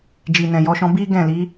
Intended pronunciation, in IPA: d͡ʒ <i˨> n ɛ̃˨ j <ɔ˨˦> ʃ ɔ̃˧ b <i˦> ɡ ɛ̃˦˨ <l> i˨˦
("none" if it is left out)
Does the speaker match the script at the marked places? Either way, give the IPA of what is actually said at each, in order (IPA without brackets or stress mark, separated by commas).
i˨, ɔ˧, i˦, l